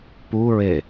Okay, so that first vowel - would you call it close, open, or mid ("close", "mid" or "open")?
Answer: close